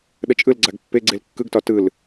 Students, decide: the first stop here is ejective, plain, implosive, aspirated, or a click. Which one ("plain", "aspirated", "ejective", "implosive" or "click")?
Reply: implosive